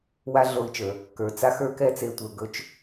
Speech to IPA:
w a˦ ɮ o˧ i̯ t͡ʃ ə˞˨ | k ə˞˨ t͡s a˦ x ə˞˦ k ɛ˦ t͡s e˧ tʷ ə˞˧ ɡ ɵ˦ t͡ʃ

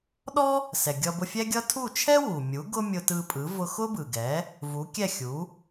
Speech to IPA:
ɗ ɔ˥ | s ɛ˩ ɡʲ ʌ˧ b ʊ˧ fʲ ɛ˥ ɡʲ ʌ˥ tʰ u˥˩ t͡ʃʰ ɛ˥ w u˩ mʲ u˩˥ ɡ ʊ˥ mʲ ʊ˧ t ɯ˧ pʼ ɯ˩˥ v ʊ˧ x ʊ˥ b ɯ˩ ɡ ɛ˩˥ | v u˩˥ kʲ ɛ˥˩ xʲ u˩˥

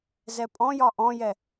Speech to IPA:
z ɛ pʼ ɔ̃ j ɒ ʔ ɔ̃ j ɛ

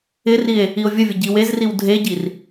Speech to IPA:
ɪ r i e̯ | i o̯ vʲ ə vʲ ə ɟ i w e z r i w dʱ e ɟ i r

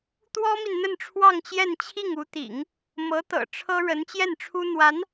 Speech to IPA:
t̪ w ɔ˥ m i˨ n n̪ ə˥˧ n ʈ͡ʂʰ w ɑ˥˧ ŋ t͡ɕ j ɛ˥˧ n t͡ɕʰ i˥˩ ŋ u˧˥ t̪ ḭ˨˩˦ ŋ | m ɤ˧˥ t̪ ɤ̰˨˩ ʈ͡ʂʰ ɤ˥ ɻ ə˧˥ n t͡ɕ j ɛ˥˩ n ʈ͡ʂʰ u˥ n̪ w a˧˥ n

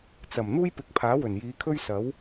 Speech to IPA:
t͡s ɐ˨˩ m n̪ uː˥ j p ɪ˨˥ k̚ pʰ aː˨˥ w ɵ˨˩ n j iː˨˧ kʰ ɵ˥ ɥ s ɐ˨˥ w

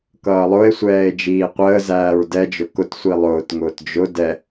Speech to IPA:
k ʌː lˠ ʊ e̯ sʷ ɛː e̯ d͡ʒ iː qʷ əː z æː ɹ d ɛ d͡ʒ ʊ k ʊ t sʷ i lˠ ʊː t ŋ ʊː t d͡ʒ ʊ d ɛ

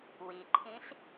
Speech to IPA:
w i ǃʰ ĩ ɬ

